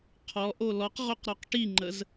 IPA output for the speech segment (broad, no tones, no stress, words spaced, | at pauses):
qʰɔʔo lɔqʁoqɾɔq ʈiŋ͡ǃəz